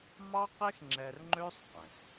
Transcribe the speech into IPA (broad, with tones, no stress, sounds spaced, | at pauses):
m ɑ˦ q e˦ x ŋ͡ǁ ɛ˧ r ŋ͡ǃ ø˦ sˤ q ɛ̃˨ x